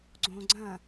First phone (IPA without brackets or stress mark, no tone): ɡ͡ǀ